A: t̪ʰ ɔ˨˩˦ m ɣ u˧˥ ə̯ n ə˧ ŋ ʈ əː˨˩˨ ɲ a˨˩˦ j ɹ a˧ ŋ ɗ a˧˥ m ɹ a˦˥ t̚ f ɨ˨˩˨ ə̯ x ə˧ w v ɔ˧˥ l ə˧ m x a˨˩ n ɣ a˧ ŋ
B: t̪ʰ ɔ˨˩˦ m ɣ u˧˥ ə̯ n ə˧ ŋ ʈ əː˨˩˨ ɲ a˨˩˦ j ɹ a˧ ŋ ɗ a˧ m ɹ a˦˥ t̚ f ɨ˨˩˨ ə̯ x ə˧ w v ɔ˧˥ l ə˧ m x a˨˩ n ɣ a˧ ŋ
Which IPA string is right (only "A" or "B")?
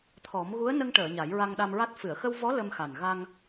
B